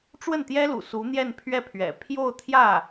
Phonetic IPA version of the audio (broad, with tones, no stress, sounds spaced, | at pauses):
ʈ͡ʂ w ə˥˩ n t̪ j ɛ˥ l ṵ˨˩ s u˧˥ n̪ j ɛ˥˧ n pʰ ɥ ɛ˥˩ pʰ ɥ ɛ̰˨˩ pʰ j o˥˧ ʊ̯ t̪ʰ j ä˥˩